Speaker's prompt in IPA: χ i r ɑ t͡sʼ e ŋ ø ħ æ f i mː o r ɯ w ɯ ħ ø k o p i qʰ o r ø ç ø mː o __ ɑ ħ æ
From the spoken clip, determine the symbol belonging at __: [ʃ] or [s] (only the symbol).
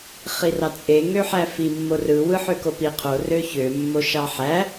ʃ